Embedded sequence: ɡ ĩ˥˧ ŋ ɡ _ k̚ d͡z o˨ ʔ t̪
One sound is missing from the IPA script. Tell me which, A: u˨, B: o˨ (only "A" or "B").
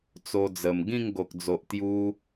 B